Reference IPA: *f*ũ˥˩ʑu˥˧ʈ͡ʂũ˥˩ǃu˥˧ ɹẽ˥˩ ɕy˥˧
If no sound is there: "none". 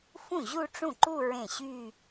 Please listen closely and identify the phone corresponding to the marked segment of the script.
f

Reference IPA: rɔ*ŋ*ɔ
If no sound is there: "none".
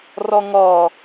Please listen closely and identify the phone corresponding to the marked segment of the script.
ŋ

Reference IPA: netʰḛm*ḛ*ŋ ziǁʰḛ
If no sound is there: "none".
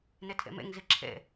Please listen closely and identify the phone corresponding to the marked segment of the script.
ḛ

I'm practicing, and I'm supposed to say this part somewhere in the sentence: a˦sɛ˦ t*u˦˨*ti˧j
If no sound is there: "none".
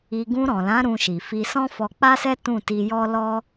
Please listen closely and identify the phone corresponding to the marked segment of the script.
ũ˦˨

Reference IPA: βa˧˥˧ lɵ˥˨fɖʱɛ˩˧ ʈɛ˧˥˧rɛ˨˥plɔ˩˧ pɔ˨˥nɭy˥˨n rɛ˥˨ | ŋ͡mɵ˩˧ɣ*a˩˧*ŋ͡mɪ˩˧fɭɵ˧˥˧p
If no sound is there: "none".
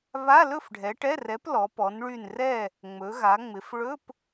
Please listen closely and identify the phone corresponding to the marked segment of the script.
a˩˧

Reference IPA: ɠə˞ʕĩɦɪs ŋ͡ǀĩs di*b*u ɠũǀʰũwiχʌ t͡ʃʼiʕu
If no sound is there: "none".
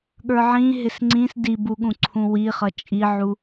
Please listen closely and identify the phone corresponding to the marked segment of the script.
b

